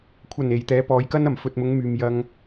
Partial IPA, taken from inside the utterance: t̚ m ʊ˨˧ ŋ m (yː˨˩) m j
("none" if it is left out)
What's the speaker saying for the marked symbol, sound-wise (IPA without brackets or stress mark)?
yː˨